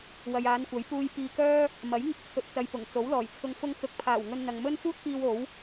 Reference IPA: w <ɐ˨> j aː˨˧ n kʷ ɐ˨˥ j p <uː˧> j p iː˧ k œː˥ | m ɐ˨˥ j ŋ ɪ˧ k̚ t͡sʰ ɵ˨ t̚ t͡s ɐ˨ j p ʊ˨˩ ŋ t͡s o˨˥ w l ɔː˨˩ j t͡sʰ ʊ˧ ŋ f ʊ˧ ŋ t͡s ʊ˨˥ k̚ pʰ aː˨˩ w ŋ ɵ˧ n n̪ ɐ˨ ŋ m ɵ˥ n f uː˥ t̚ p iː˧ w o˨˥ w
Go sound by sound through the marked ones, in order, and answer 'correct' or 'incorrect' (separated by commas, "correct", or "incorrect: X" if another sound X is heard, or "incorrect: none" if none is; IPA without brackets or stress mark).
correct, correct